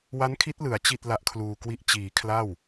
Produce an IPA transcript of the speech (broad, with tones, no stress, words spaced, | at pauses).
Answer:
wa˦˥nkʰi˦˥t̚ lɯ˩˦a̯t͡ɕi˥˩t̚ la˦˥ʔkʰluː˧kwi˥˩ʔ t͡ɕiː˩˦ kʰla˥˩w